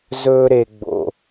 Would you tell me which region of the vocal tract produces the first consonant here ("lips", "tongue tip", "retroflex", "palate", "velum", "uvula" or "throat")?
tongue tip